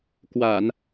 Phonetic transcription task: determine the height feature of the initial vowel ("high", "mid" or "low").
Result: low